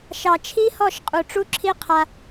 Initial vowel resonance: oral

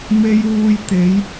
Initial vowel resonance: oral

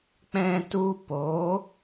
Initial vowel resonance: nasal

